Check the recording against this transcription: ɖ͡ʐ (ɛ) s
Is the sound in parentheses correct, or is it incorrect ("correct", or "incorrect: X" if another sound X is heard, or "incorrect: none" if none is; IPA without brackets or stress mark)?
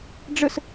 incorrect: ə